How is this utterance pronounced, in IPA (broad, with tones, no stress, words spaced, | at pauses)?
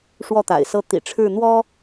ʂwɔ˥˩t̪a̰˨˩ɪ̯sɤ˥ t̪ḭ˨˩ʈ͡ʂʰɻ̩˥˩n̪wɔ˥